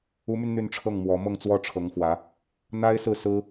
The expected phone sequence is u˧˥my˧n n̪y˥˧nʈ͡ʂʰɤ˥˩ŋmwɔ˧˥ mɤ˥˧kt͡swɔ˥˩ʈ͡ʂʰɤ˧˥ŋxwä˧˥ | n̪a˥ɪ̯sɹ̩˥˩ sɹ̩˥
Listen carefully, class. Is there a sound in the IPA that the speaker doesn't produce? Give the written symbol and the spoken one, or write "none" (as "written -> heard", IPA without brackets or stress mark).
k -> ŋ